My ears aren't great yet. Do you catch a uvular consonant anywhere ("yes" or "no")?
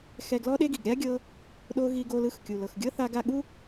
no